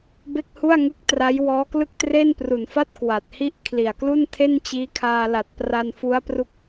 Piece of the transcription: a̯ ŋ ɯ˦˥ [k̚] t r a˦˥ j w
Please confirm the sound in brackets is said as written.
yes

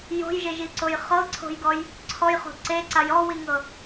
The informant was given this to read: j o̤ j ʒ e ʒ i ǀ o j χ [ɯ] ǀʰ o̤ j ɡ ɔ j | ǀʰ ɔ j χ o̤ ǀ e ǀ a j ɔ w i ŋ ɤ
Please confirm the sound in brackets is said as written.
no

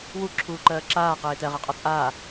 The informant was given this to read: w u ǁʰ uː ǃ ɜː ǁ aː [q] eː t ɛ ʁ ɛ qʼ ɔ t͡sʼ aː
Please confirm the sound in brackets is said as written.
yes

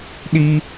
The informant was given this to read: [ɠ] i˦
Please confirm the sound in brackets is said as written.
no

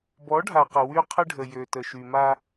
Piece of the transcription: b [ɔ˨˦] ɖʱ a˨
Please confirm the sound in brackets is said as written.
yes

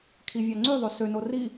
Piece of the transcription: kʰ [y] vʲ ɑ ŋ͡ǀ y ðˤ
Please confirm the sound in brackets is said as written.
no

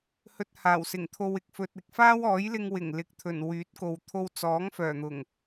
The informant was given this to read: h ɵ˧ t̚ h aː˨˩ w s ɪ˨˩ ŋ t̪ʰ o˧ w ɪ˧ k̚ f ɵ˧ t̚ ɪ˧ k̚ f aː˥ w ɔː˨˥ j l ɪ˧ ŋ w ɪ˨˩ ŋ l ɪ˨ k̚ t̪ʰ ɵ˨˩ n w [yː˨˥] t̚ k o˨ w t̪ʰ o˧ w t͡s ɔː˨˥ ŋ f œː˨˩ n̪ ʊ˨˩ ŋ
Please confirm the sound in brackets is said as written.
yes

